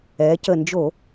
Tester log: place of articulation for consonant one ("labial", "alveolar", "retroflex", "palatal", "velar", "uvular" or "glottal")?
palatal